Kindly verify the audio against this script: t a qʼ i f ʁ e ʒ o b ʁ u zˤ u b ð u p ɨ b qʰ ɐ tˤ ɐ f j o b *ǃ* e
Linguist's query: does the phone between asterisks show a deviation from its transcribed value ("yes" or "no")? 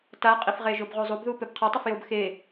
yes